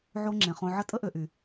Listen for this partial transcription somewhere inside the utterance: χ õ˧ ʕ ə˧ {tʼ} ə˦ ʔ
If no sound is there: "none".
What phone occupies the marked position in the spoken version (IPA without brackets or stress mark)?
tʼ